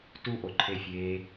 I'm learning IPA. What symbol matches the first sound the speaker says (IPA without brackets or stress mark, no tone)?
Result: t